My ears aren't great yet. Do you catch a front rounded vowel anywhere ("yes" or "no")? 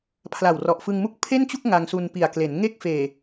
no